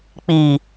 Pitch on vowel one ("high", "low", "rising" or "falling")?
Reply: low